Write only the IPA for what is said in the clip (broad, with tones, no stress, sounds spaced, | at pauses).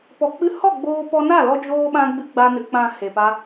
p ɔ˨ k͡p ɨ˧ h ɔ˦˨ ɡ͡b oː˧ p ɔ˧ n a˦˨ l ɔ˧ d͡ʒ oː˧ ɓ ã˧ ɡ͡b ɨ˧ ɡ͡b a˧ n ɨ˨ k͡p ã˨ h e˨ p a˦